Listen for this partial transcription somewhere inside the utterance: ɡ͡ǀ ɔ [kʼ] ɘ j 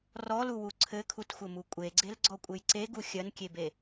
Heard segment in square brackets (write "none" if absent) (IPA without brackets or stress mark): kʷʼ